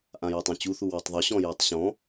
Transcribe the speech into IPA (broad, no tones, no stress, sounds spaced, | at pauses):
ʔ ã j u tˤ ũ t͡ɕ u θ u w ɔ tˤ ðˤ ʏ ɕ ɔ̃ j e tˤ ɕ ɔ̃